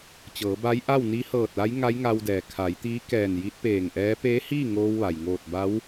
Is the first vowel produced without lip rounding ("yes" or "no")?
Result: yes